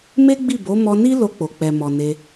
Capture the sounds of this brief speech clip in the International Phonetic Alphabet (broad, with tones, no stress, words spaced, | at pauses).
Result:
me˦ɡ͡bi˦˨bo˨˦ mɔ˧ni˦ lo˧k͡po˨k͡pɛ˨mɔ˨ ne˧